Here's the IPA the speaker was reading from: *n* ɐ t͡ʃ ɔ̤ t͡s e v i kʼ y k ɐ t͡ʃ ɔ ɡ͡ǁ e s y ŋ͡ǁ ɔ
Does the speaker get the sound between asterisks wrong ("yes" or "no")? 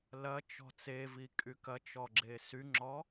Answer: yes